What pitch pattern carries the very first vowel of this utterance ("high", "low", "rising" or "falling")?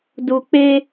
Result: low